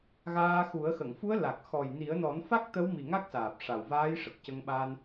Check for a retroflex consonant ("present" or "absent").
present